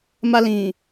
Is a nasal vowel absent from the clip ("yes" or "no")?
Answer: no